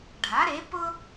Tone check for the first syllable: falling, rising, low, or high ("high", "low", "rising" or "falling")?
rising